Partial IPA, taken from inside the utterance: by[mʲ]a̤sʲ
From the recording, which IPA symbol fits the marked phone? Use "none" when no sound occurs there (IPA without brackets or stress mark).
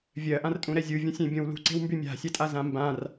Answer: mʲ